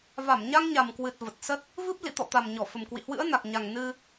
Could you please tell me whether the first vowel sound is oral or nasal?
oral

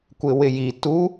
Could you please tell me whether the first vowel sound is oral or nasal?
oral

